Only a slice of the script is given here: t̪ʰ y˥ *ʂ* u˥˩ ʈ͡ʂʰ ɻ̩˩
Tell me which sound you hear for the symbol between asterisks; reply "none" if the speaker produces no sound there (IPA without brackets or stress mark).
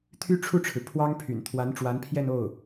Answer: ʈ͡ʂʰ